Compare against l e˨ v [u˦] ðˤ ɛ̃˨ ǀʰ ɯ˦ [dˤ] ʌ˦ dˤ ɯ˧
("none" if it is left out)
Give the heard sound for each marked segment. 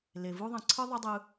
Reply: u˦, ðˤ

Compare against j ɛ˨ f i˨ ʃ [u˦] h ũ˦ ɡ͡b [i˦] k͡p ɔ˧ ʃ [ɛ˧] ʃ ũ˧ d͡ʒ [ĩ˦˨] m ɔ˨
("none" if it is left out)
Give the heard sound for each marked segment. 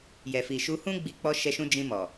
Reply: u˧, i˧, ɛ˧, ĩ˧

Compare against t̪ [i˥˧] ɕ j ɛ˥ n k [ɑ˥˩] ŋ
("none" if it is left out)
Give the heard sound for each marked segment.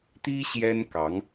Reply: i˥, ɑ˧˥

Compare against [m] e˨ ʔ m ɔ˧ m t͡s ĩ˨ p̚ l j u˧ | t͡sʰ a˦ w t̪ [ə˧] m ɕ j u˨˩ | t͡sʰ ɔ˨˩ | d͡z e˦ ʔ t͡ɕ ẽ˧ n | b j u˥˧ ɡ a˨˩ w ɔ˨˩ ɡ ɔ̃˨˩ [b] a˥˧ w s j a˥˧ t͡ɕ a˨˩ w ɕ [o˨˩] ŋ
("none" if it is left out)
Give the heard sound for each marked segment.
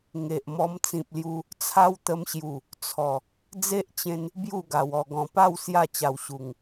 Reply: ŋ, ə˧, p, u˨˩

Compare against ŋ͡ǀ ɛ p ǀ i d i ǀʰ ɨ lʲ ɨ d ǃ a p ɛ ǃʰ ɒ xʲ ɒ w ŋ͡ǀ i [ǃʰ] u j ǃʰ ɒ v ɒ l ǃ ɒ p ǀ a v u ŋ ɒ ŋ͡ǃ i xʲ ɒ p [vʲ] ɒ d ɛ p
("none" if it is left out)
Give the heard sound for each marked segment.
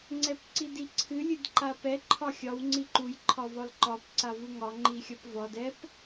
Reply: ǃ, v

